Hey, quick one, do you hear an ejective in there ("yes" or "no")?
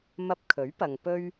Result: no